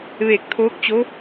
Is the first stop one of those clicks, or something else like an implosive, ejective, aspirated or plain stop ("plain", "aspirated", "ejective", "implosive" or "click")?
plain